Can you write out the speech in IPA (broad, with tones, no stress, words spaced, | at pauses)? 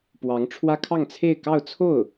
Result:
pwɑ˧˥ŋʈ͡ʂʰwä˥kʰɑ˥˧ŋt͡sʰe˥˧ɪ̯ kɑ˥˧ʊ̯t͡sʰo˥˩ʊ̯